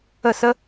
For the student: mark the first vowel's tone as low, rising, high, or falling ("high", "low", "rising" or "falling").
falling